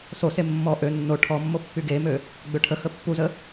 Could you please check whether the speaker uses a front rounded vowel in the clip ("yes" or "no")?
yes